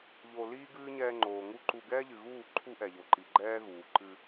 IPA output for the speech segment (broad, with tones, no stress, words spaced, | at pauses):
ʎo˧ liː˦ ɡɨː˦ɲɛː˧ŋ͡ǃoː˨ ŋu˦ǃu˧ ɡɛː˦ʎɨ˨ɣuː˦˨ǃʰu˦ ʔɛ˨ʎo˨ǃi˨ ɡ͡ǃɛː˦ɣuː˨ ǃɨ˧